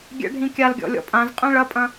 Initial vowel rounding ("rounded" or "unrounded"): unrounded